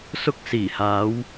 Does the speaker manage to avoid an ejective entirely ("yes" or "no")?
yes